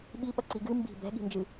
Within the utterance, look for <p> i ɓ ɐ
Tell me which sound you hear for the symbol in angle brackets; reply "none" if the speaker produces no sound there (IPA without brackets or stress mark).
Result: ɓ